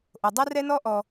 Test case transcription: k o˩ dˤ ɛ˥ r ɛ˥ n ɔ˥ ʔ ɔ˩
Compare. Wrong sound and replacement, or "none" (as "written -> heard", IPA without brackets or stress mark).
k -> ʔ